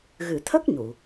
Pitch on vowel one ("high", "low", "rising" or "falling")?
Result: low